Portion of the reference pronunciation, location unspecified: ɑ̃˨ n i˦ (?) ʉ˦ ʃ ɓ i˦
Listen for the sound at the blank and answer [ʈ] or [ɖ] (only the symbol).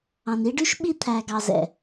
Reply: ɖ